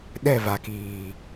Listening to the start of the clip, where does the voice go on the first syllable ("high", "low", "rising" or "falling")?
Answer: falling